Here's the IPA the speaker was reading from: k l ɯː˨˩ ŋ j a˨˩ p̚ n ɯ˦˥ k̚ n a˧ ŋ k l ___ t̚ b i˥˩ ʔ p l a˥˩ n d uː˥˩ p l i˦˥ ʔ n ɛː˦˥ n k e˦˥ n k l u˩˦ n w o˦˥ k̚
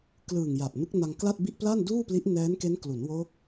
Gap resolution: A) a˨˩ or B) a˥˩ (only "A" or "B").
B